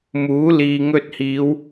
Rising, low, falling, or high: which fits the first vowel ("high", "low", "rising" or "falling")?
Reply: rising